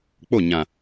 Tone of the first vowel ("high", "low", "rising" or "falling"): falling